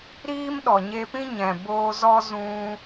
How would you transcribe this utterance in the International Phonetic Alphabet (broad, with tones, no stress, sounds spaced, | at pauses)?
ɾ iː˦ m ɗ ɔ˨ ɲ e˧ p ĩ˦ ɲ ɛ̃˨ b oː˧ z ɔ˦ z ũ˦